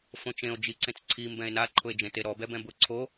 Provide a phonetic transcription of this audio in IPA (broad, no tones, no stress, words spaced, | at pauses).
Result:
fõt͡ʃẽo̯ d͡ʒiǀẽt͡sǀʰi mbɛ̃e̯na ǃʰʊe̯d͡ʒẽteɾɔ bɛbɛ̃bʊ ǀʰo